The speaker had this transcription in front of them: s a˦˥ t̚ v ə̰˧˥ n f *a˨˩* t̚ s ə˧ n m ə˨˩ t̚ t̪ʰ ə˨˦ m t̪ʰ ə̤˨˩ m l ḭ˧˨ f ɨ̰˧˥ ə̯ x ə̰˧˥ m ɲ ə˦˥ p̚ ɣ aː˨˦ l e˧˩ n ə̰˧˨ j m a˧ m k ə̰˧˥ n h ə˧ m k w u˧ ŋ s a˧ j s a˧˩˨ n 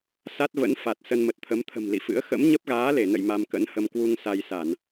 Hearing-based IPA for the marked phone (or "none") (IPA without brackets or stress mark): a˨˩